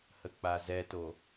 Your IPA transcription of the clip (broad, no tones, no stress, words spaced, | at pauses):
hək͡pazɛto